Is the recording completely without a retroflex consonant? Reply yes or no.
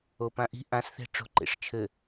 no